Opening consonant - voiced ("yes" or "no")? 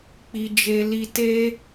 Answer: no